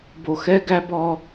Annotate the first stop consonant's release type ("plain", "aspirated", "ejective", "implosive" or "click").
plain